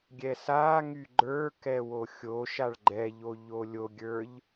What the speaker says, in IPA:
ɡʲ ɛ s a ŋ y ɡ͡ǃ ə˞ k ɛ w o xʲ o ʃ a ɭ ɡ͡ǃ ɛ ʎ o ʎ o lʲ o ɡʲ ə˞ ʎ

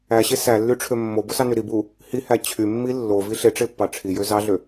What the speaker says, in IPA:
æ ɕ e s æ lː y ʈ͡ʂʰ ø mː o b o s ɑ n y ɾ i b u | h i h æ t͡ɕʰ y mː i lː o v i ɬ e ʈ͡ʂ e pː ɑ ʈ͡ʂʰ i j ø z ɑ ɮ ø

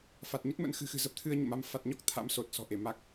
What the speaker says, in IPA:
f a˨˩ t̚ ɲ ə˦˥ t̚ m ə̰˧˥ n x ɨ̤˨˩ x ɨ̤˨˩ z ə˨˩ p̚ t̪ʰ ɨ˧ ə̯ ɲ o̰˧˨ m a˨˦ m f a˨˩ t̚ ɲ ɔ˦˥ k̚ t̪ʰ a̰˧˥ m s o˨˩ t̚ s ɔ̤˨˩ ʔ e˧˩ m a˨˩ k̚

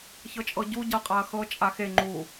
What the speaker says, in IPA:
ç ɤ t͡ʃʼ ɤ ɟ u ɟ ɤ qʼ a ɐ̯ x ɤ t͡ʃʼ a x e ŋ͡ǃ u

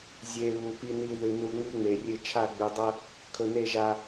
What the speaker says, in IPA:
zʲ e˨ β u˨ p i˧ n i˧ ð ɨ˨ n u˧ ŋ͡m ʉ˦ ŋ͡m e˨ rʲ ɨ˧ t͡ʃʰ a˦˨ ɡ͡b ʉ˨ dˤ ɐ˦ | kʰ ɵ˨ n e˦˨ ʒ a˧

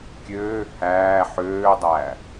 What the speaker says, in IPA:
kʲ øː h æː ħ øː dˤ æ

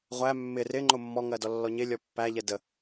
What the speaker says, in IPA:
ʁʷ æ mː ɪ r ɪ ŋ͡ǃ ʊ mː ɔ ŋ ɜ d ɔ lː ɔ ɲ ɪ lʲ ɔ pː æ ʎ ɛ d ə

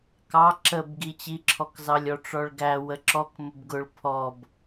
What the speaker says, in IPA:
k ɑ ǁ ə b ɡ i t͡ɕ i ǁʰ ɔ k z ɑ lʲ ɔ ʈ͡ʂ ɔ ɭ ɡ æ w ə ǁ ɔ k m ʊ b ɡ ʊ ɭ pʰ ɔ b

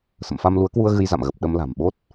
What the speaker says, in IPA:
s ə̰˧˨ m f a˧ m l u˨˦ ə̯ k w u˧ ə̯ ɣ ɨ˧ j z a̰˧˨ m ɣ ə˨˩ p̚ ɗ ə˧ m l a̤˨˩ m ɓ o˦˥ t̚

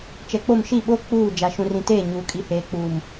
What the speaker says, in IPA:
t͡ʃ ɛ˨ k͡p o˦˨ m ʃ i˦˨ ɓ oː˦ k͡p uː˦˨ d͡ʒ a˨ ʃ ũ˨ r ĩ˨ t eː˦˨ ɲ uː˨ kʼ i˨ h eː˨ k͡p uː˨ m

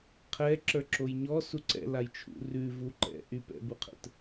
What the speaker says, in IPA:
qʰ ɛ ǁ ə˞ ǁ o j ɲ ɔ s u ǀ ɛ̰ l a j t͡ʃʰ ṵ r ʉ v u ǃ ɛ̰ ʔ y p ɛ̰ b u qʰ ə̰ t

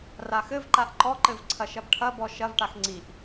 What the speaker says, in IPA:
r a x ɘ v ǃ a ʔ ǃ ɔ ǃ ɘ v ǀʰ ɐ ʃ ɐ b ʈʰ ɐ b ɔ ʃ ɐ v ʈ a x ŋ͡ǀ i ʔ

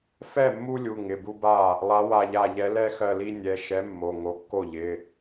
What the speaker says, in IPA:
f ɛ˥˩ mː u˦ lʲ u˩˧˩ ŋ ɪ˩˧˩ b u˦ b a˥˩ | lˠ a˨˥ w a˧˩ ʎ a˧˩ ʎ ɛ˨˥ l ɛ˦ x ɜ˧˩ l i˦ nʲ ɛ˩˧˩ ʃ ɛ˨˥ mː o˩˧˩ ŋ o˨˥ kː o˥˩ ʎ ɪ˩˧˩

